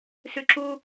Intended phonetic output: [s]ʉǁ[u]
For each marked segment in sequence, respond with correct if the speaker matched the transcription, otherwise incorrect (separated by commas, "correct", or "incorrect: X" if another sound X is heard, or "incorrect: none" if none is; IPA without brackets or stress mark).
correct, correct